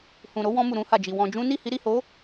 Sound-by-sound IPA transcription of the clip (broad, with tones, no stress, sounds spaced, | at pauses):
h ũ˨ ɾ o˨˦ w ɔ̃˧ m u˨ ɾ ũ˧ h a˨ d͡ʒ i˨ w ɔ̃˧ d͡ʒ ũ˦ n i˦˨ h i˨˦ ɾ i˦˨ h o˨˦